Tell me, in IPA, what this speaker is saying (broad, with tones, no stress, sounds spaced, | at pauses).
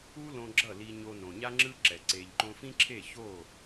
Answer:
u˦ l õ˧ ɡ͡ǁ ʌ˦˨ l i˧ ɲ o˧ n õ˨ ɲ a˦ ŋ͡ǁ ɯ˦ ǁ ɛ˨ ǀ e˨ ʎ ǃ õ˧ f ĩ˦ ǁʰ e˦˨ ç o˦˨